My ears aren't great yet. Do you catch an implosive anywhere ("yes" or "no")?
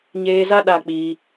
yes